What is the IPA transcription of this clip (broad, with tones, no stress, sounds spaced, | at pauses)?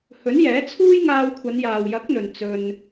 h ɵ˨˥ n j ɛː˨˥ t͡sʰ uː˥ j ŋ aː˧ w kʷʰ ɐ˨˧ n j aː˨ w j ɐ˨˥ k̚ n̪ ɵ˨ n t͡s ɵ˧ n